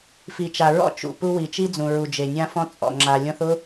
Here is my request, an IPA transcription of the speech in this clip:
f i˨ t͡ʃ a˨ ɹ ɔ̰˦ t͡ʃ ṵ˨ p u˦ w i˨ t͡ʃ i˦ d͡z ũ˨ ɹ u˨ d͡ʒ e˨ nʲ ã˦ f ɔ̃˦ t͡sʼ ɔ̰˨ ŋ͡ǁ a˨ lʲ ɔ̃˦ θ ʊ˦

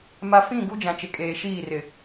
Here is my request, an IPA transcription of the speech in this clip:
m a˨ f ĩ˦˨ ɡ u˦ d͡ʒ ã˨ t͡ʃ ɪ˨ kʼ eː˨ ʃ iː˦˨ r ɪ˨

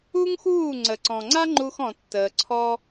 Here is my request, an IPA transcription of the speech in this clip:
u˦ ŋ x uː˦˨ ŋ͡ǀ ə˨ ǀ ɔ̃˨ ŋ͡ǀ a˦ ŋ͡ǃ u˧ x ɔ̃˨ tː əː˨ ǀʰ ɔ˧

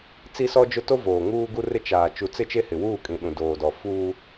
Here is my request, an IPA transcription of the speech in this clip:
t͡s i˦ s ɔ˦ d͡ʒ ʊ˦ t o˦ v oː˨ ŋ uː˦ ɡ u˦ r ɪ˦ t͡ʃ aː˨ t͡ʃ u˨ t͡s ɪ˦ t͡ʃ e˦ h ɪ˨ w uː˦˨ kʼ ĩ˨ ɗ ũ˨ d oː˨ d ɔ˨ f uː˦

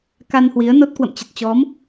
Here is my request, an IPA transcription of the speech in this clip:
k a˧ n h w i˨˦ ə̯ n o˦˥ t̚ k w ə̰˧˨ m t͡ɕ ə˨˩ t̚ t͡ɕ ɔ˨˦ m

